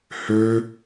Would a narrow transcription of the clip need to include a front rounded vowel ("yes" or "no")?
yes